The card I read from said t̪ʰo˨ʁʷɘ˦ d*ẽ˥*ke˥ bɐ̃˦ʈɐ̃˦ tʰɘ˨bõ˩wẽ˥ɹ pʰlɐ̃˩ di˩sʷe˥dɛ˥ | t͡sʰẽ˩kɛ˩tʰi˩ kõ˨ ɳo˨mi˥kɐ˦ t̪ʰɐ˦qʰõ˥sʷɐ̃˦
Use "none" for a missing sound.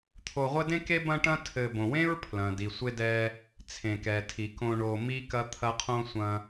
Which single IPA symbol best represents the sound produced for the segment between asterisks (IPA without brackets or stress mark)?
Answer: ẽ˥